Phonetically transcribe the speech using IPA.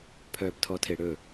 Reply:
pʰœːptʰɔtʰeɽɵ

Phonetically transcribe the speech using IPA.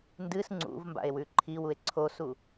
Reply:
ndɨs ŋ͡ǀṵvmba̰e̯ wʉǃʰiwue̯ ǀʰosu

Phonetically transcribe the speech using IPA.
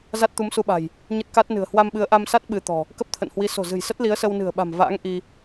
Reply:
za˦˥t̚t̪u˨˦msu˧ɓa̤˨˩j | ɲə˦˥t̚ka˦˥t̚nɨ̤˨˩ə̯ hwa˧mɓɨ˨˦ə̯ʔa˧msa˦˥t̚ ɓɨ˧t̪ɔ̤˨˩ | kə˦˥p̚t̪ʰə̰˧˨nhwi˨˦ so̤˨˩zɨ̤˨˩jsə˦˥t̚ li˨˦ə̯sə˧wnɨ̤˨˩ə̯ɓa̤˨˩m va̰ː˧˥ŋ ʔi˧

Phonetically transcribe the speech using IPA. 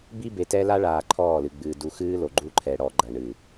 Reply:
bi˦be˨tɛ˦ la˦ɭaː˨ ǃʰɔː˦˨lɨ˨ɡ͡bɨː˨ du˨ xɨː˦lo˨ ɡ͡ǃu˦ǃʰɛ˨ɽɔ˨ ɡ͡ǃɐ˨ɳɨ˨

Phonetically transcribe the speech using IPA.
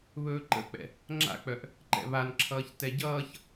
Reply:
βɵːǃə̰k͡pɛ̰ | ŋ͡ǁa̰k͡pœʔ | ǃɛ̰βanǁʰʌːç tɛɟʌːç

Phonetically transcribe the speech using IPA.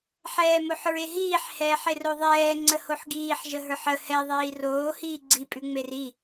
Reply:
ħɛːmoħɹeɦiːħ hɛːħeroðˤɛː ŋ͡ǀəhoħɡiːħ ʒəɦə˞ħə hɛ ðˤiːroː hiːɡ͡ǀi pʼʉŋ͡meri

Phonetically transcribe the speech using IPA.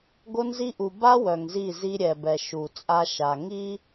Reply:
ɡo˦nzi˦ ʔu˨ ba˦ wœ˨ŋzi˦˨zi˦ ɾʲɛ˨bɛ˨ ʃu˨t͡sʼa˦ʃa˨ ŋi˦

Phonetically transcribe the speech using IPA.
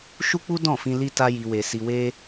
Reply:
ʃu˦k͡pu˦ dɔ̃˦˨fĩ˧ li˦ta˦ji˧we˧ si˧we˦

